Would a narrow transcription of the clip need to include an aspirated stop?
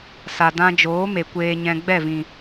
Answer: no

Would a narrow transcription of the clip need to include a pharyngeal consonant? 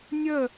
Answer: no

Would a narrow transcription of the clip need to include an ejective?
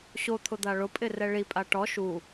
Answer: yes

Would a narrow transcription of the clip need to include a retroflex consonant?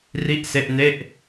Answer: no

